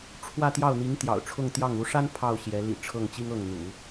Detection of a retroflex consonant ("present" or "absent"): present